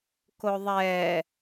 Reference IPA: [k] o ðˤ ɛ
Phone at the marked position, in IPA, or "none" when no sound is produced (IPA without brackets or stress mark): k